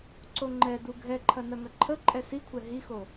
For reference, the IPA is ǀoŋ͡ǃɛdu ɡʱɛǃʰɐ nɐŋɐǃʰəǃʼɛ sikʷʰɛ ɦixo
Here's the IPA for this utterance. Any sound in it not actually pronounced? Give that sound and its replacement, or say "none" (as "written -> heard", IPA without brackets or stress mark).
none